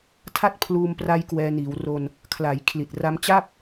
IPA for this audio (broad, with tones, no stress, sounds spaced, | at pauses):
tʰ a˦˥ t̚ pʰ l uː˧ m p r a˦˥ j k w ɛː˧ n iː˩˦ w r o˧ n | kʰ l a˩˦ j kʰ l i˨˩ t̚ r a˦˥ m t͡ɕ a˥˩ p̚